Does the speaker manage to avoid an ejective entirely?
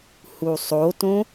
yes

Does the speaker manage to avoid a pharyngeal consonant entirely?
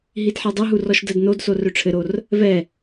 no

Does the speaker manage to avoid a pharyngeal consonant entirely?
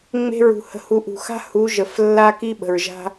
yes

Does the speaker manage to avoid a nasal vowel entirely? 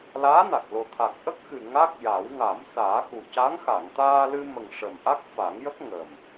yes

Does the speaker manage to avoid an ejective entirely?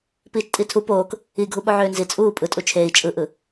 no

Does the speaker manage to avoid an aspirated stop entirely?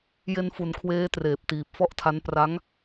no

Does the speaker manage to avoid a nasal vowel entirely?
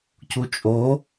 yes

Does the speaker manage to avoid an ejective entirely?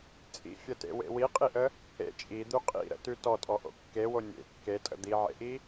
no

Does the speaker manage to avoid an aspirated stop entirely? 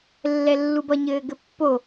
yes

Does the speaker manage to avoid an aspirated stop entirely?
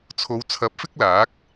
no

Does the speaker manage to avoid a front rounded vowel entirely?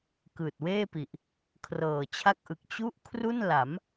yes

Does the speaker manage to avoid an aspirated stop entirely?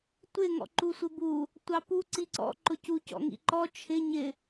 no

